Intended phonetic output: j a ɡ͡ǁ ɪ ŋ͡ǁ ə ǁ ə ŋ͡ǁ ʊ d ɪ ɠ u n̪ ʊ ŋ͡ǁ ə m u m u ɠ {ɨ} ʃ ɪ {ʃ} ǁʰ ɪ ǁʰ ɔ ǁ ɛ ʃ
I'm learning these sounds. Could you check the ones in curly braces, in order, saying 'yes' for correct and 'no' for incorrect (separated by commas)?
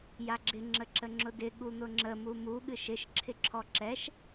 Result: yes, yes